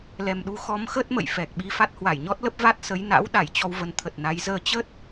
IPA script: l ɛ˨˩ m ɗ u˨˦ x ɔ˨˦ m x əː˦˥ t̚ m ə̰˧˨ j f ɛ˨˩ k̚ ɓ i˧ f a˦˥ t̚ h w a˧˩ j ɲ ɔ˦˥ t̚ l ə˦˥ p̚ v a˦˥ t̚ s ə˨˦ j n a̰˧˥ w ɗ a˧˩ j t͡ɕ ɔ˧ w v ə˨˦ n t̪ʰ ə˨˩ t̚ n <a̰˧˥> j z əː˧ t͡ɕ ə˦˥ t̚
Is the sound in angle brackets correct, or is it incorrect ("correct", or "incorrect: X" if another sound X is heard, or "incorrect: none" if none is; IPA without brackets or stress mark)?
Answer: incorrect: a˨˦